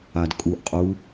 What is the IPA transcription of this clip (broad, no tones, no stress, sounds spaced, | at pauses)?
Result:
a d kʼ u ʔ qʼ u